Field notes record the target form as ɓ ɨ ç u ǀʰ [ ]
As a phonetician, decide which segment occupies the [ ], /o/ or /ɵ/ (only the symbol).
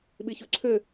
ɵ